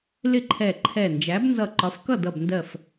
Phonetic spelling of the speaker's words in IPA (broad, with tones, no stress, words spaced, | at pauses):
lɪ˥˩ǃʰɛ˧˩ǃʰɛ˧˩ nd͡ʒæ˨˥bnzʌ˧˩ǃɒ˨˥f kʌ˥˩dʌ˧˩bndɜ˧˩f